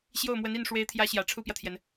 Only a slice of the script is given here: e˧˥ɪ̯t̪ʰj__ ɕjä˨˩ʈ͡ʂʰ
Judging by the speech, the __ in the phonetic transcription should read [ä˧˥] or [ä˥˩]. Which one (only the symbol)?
ä˧˥